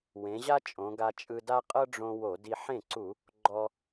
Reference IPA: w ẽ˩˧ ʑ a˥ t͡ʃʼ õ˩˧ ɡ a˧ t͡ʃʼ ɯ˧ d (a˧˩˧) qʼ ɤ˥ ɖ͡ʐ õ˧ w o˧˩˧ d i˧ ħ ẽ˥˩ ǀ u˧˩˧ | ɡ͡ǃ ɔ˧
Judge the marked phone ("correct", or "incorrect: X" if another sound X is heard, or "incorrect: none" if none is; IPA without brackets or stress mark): incorrect: a˥